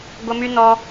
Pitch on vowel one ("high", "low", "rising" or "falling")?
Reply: high